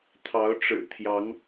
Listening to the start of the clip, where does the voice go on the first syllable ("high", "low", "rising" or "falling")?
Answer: rising